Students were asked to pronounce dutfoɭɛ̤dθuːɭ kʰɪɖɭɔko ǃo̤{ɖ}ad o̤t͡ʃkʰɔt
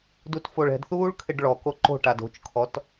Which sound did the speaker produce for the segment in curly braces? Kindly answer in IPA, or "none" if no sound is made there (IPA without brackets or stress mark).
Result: ʈ